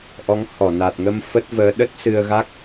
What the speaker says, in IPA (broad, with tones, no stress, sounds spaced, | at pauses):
ʔ ɔ˨˦ ŋ h ɔ˧˩ n a˨˩ t̚ ŋ ə˧ m f ə˦˥ t̚ v əː˨˦ ɗ ə˦˥ t̚ s ɨ˧ ə̯ ɣ a˦˥ k̚